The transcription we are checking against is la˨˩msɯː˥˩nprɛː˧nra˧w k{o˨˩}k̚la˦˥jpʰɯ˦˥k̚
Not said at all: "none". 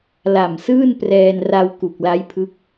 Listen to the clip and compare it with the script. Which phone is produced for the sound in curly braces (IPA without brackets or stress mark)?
u˨˩